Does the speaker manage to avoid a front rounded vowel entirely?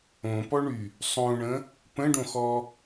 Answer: no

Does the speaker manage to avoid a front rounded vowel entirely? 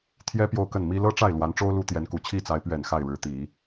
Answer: yes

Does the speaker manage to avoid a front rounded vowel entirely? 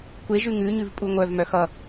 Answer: no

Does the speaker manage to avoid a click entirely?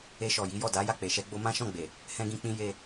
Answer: yes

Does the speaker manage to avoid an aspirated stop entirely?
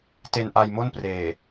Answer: yes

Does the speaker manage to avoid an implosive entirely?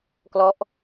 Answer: yes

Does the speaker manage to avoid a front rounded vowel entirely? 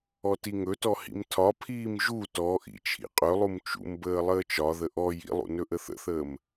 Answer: yes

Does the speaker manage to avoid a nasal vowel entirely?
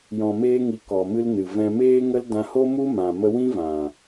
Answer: no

